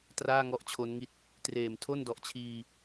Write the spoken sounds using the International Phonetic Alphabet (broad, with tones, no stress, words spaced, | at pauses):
traː˥˩ŋɔ˦˥ʔt͡ɕʰo˦˥nŋi˦˥t̚ | treː˨˩mtʰo˥˩ndɔ˨˩ʔt͡ɕʰiː˧